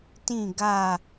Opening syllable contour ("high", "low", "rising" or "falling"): falling